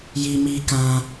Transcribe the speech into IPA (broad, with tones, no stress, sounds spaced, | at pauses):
j i˧ m i˧ k ã˧